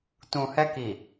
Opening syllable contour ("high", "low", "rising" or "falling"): low